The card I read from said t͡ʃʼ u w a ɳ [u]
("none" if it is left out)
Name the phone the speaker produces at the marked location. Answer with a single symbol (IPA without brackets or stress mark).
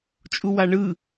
ɯ